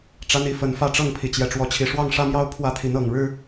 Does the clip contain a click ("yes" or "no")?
no